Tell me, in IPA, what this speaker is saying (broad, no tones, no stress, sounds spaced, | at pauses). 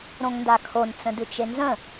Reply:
ɾ õ ŋ n d a kʰ o n t͡s ə̃ d ɨ t͡ʃ e n z ə̃